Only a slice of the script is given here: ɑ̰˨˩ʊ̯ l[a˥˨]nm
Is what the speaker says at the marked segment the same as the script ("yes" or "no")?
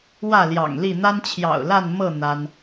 yes